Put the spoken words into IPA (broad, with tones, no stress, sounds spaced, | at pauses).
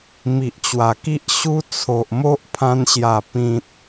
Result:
m i˨ ʔ t͡ɕ w a˨˩ k i˦ ʔ ɕ u˦ t͡sʰ o˨ ʔ m o˦ ʔ pʰ ã˧ n ɕ j a˨˩ p ĩ˨ t̚